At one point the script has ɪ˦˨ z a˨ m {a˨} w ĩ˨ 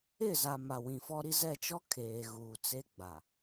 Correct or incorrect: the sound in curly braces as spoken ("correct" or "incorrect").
correct